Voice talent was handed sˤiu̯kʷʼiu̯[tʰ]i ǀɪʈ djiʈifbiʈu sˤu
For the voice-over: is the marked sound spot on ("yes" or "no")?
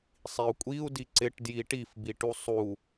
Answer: no